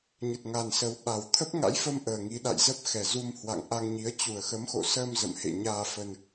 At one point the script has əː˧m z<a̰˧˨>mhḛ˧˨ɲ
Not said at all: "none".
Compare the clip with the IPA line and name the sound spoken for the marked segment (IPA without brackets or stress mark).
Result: ə̰˧˨